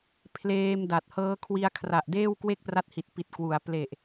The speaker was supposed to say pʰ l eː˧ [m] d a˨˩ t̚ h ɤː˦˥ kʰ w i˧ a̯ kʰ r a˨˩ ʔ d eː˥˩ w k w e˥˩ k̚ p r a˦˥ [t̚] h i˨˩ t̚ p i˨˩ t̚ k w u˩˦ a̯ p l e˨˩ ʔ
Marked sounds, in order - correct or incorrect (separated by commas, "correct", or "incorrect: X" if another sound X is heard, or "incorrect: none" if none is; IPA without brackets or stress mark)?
correct, correct